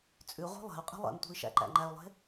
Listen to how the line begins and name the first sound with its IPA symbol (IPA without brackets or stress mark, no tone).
t͡sʼ